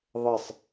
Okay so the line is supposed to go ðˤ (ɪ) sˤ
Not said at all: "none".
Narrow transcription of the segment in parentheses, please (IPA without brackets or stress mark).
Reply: ɪ